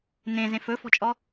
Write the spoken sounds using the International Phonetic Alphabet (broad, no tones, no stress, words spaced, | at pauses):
nẽ zẽfɵfɔ̤t͡ʃʼɔ